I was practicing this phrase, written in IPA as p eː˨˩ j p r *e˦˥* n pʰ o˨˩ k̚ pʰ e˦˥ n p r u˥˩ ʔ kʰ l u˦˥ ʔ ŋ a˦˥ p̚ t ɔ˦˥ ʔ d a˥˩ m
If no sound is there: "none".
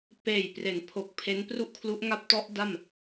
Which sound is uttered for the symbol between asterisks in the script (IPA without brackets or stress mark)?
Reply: e˩˦